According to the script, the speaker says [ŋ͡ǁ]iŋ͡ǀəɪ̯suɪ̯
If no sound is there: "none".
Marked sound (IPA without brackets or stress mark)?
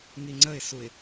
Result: ŋ